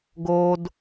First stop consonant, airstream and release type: plain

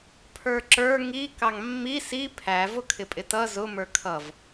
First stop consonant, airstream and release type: aspirated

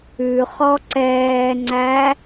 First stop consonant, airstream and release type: click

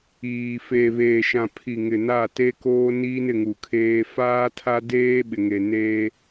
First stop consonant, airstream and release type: aspirated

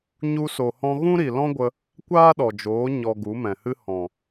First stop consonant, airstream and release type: plain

